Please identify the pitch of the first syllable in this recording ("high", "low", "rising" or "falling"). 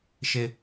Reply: low